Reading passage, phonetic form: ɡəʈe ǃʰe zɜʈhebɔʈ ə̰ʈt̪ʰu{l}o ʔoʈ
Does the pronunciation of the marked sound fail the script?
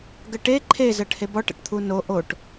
yes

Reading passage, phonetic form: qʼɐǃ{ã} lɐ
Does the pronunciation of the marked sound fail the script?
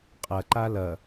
yes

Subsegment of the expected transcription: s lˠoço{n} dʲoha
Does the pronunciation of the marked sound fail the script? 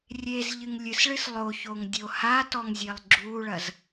yes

